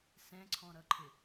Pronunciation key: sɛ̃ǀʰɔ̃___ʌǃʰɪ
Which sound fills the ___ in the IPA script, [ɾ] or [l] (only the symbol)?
ɾ